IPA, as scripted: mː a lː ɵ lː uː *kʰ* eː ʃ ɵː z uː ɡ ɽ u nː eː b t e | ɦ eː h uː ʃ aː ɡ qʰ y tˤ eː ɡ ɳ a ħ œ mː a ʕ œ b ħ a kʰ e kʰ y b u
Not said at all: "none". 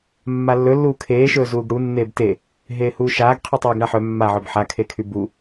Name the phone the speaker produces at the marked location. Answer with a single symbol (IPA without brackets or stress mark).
kʰ